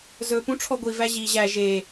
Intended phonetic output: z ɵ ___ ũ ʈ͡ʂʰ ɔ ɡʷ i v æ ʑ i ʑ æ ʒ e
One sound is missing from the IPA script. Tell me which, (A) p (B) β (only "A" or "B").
A